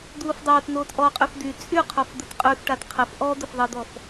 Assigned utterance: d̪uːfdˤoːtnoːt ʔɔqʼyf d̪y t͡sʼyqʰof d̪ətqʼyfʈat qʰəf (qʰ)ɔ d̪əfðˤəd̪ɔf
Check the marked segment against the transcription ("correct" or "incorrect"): incorrect